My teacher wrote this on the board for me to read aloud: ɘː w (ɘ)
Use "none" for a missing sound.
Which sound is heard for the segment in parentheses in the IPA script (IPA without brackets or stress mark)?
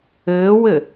ɘ